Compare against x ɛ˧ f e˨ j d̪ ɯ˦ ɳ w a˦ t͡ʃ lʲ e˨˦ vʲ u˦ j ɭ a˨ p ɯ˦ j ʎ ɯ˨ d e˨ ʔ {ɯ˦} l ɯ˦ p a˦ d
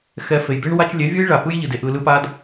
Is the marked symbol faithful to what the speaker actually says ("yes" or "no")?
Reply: no